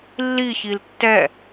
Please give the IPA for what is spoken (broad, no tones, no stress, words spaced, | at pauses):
lːi çiltːɛ